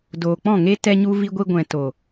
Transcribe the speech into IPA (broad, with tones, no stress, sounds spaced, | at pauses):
d oː˨ k͡p ɔ̃˦˨ ŋ e˦ t ɛ˧ ɲ u˧ v i˧ ɡʷ i˧ ɡʷ ɛ̃˨ t o˨